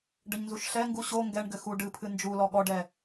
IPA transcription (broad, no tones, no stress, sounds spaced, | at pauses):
ɖ ɘ ɲ n z u ʃ ɬ ɛ ŋ ɡ u ɕ o ŋ ɡ ɛ ɳ ɡ ɘ x u ɖ ɨ pʰ ɨ n d͡ʒ u l ɔ ɠ ɔ ɖ ɛ